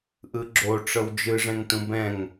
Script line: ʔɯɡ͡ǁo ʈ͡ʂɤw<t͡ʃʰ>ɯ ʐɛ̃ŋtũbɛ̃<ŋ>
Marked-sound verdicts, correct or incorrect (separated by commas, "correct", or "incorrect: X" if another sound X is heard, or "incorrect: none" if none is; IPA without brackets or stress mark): incorrect: d͡ʒ, correct